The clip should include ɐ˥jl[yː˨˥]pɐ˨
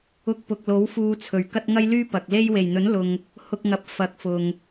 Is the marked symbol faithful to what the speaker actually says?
no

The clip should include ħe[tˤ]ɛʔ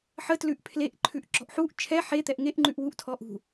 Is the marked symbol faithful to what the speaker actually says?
no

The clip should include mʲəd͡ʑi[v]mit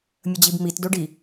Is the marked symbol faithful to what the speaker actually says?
no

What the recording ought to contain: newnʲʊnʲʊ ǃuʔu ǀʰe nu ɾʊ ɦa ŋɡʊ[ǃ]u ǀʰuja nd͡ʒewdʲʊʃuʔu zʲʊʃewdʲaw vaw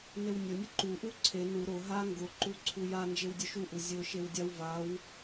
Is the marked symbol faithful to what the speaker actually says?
yes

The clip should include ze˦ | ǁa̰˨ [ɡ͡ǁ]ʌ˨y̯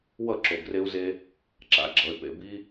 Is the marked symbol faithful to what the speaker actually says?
yes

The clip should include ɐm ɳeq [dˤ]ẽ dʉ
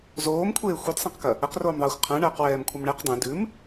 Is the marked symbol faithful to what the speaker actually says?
yes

